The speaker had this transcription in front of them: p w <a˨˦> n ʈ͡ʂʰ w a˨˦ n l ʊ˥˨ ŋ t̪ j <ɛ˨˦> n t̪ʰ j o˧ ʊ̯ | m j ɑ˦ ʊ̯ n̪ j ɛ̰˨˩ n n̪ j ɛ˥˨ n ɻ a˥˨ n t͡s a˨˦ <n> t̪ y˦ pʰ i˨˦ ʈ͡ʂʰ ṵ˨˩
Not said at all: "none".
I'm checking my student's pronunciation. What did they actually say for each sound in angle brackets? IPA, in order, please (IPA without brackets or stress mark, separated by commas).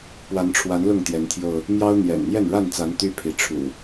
a˨˦, ɛ˨˦, n